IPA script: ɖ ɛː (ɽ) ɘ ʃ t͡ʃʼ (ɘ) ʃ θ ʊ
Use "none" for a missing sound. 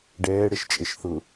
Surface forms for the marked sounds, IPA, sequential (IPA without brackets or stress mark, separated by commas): ɽ, e